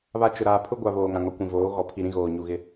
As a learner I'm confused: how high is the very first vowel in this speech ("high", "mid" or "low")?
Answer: low